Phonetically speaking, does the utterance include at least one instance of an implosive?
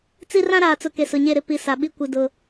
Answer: yes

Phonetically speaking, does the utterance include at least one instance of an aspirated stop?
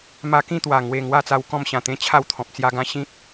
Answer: yes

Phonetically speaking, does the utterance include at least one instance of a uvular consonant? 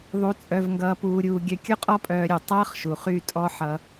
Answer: yes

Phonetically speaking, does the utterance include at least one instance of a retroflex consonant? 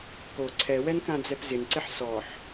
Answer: no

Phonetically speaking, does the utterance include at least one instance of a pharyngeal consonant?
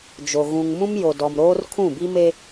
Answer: no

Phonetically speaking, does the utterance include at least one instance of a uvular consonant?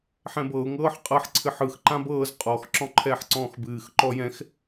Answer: yes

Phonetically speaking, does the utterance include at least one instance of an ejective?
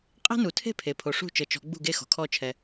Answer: yes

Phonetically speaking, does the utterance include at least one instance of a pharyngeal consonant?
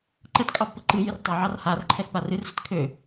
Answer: yes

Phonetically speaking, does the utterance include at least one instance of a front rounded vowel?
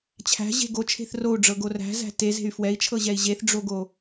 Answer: yes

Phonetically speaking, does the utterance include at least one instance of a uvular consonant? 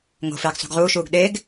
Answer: yes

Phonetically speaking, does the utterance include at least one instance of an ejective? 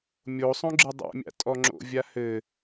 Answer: yes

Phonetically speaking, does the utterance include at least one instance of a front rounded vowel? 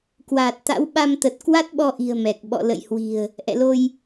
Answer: no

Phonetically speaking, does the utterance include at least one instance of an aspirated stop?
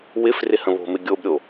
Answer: no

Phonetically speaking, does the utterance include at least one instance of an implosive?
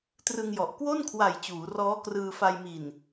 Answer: no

